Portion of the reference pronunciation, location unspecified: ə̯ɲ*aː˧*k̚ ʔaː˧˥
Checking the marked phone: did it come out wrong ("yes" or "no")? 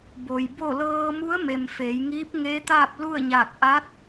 yes